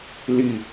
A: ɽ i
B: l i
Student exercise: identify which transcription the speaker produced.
B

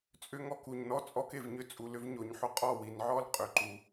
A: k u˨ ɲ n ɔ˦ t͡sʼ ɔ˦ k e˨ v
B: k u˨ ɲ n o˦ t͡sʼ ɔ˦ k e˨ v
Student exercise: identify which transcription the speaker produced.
A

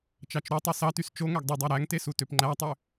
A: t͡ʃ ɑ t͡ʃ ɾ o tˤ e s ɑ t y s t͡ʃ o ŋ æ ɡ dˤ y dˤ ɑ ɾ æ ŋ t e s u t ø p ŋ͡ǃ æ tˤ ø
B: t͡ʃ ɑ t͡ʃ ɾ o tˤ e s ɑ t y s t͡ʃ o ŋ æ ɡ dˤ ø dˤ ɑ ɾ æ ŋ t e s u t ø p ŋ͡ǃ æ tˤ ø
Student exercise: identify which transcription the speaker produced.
A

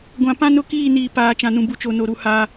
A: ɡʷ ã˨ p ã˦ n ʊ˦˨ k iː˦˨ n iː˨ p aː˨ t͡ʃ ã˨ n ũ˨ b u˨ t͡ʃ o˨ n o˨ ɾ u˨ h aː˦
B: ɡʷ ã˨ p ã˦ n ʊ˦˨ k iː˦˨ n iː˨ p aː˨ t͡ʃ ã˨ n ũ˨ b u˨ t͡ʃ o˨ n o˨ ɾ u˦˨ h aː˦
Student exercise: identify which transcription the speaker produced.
B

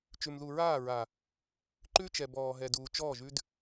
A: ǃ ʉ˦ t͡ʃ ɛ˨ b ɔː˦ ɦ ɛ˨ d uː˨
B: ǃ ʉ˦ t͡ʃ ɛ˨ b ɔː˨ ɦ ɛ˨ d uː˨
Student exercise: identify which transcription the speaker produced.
B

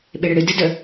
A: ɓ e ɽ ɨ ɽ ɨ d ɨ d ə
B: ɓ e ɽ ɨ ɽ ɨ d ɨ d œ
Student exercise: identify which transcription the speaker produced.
A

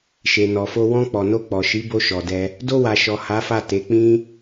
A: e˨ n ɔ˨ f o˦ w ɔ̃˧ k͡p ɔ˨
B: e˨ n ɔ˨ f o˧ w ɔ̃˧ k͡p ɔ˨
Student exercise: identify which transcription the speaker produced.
B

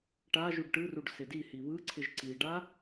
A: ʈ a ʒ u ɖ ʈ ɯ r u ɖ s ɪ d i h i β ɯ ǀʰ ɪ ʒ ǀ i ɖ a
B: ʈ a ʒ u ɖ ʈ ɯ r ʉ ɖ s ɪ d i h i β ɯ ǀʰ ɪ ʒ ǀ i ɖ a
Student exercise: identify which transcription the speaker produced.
A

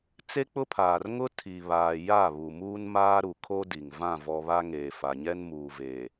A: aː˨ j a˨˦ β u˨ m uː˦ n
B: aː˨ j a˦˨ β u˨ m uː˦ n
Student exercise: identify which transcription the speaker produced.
B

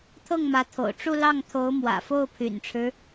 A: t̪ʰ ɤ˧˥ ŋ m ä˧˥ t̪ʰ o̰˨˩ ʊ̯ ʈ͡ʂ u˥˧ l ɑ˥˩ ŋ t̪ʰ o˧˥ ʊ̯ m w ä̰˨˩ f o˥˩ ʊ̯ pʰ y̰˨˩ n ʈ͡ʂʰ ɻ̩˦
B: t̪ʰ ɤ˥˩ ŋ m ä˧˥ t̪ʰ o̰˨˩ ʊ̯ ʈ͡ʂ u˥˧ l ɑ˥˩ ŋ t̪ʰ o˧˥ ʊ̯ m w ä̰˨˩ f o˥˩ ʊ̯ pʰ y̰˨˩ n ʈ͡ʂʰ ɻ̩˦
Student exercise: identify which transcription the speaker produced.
B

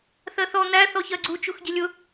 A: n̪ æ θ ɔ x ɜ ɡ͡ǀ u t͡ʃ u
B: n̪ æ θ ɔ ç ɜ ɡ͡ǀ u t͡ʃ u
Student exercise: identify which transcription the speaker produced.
B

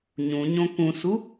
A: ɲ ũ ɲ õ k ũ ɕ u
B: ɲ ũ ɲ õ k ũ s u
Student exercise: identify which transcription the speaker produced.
B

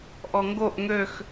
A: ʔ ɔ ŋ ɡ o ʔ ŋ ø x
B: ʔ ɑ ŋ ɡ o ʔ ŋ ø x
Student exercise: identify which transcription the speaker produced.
A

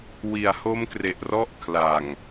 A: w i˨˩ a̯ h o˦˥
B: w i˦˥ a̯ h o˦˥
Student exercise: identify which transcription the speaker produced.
A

